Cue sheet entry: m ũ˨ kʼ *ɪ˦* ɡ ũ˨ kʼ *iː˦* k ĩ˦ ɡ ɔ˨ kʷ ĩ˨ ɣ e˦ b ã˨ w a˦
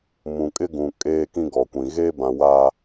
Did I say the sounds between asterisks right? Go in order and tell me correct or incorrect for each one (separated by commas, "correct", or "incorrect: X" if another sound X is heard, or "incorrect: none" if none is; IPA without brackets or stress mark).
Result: correct, incorrect: eː˦